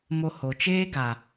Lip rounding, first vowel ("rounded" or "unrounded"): rounded